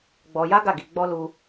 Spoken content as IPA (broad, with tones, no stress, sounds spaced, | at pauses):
ɡ͡b ɔ˧ j a˦ ɡ a˦˨ ɡ i˧ ɡ͡b ɔ˦ l u˦